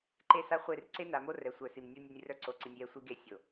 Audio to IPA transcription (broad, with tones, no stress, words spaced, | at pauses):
ǃe˦sa˦χʷe˦˨r ǀe˦na˨mo˦ rɛ˨sʷœ˨si˨m nʲu˦nʲo˦nʲ rœ˦ǀo˨ǀi˨nʲ jɛ˦sʷi˦ɡe˦ sʲo˨